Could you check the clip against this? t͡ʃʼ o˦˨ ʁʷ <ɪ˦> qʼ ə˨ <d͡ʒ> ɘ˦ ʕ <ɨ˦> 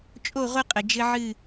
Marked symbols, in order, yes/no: no, yes, no

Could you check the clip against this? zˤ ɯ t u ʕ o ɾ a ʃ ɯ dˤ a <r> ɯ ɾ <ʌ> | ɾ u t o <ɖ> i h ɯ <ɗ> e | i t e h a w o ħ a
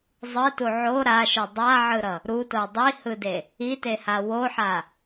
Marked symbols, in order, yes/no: no, yes, no, no

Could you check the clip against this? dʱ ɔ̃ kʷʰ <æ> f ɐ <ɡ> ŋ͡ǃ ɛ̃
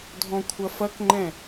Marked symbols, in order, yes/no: no, no

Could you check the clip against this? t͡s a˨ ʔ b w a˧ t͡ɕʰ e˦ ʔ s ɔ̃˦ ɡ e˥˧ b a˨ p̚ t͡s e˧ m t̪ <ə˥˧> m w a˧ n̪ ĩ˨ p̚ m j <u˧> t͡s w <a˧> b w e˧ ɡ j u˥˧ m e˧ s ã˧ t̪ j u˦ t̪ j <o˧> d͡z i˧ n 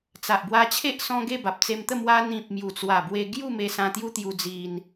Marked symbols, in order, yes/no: yes, no, no, no

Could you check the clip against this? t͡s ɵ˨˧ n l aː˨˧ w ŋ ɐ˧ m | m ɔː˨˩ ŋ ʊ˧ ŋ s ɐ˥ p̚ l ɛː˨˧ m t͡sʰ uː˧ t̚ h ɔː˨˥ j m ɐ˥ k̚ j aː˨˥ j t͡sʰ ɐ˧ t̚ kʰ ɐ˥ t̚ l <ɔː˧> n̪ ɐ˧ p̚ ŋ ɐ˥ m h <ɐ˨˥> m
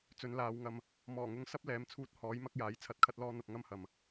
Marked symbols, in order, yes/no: no, no

